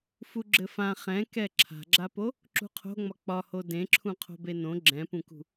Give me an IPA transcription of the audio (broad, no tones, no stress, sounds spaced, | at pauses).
f u ɡ͡ǁ ɘ f ã χ ɛ̃ k ɛ ǁʰ a̤ ɡ͡ǁ a p o | ǁ ṳ qʰ o̤ ŋ͡m ɒ k͡p ɒ h o d ẽ ǁʰ ũ qʰ o̤ b e n õ ɡ͡ǁ ɛ̃ p ũ k ṳ